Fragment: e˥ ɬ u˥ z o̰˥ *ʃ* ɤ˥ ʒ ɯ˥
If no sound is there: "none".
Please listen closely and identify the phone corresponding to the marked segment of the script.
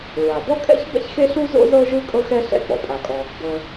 z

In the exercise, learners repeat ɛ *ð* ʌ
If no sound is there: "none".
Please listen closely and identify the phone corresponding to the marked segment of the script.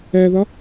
ð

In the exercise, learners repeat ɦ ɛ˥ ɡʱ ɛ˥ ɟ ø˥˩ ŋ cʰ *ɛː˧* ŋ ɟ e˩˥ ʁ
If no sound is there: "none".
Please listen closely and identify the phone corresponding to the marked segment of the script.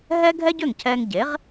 ɛː˧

